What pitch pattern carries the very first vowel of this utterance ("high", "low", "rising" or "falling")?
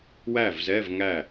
falling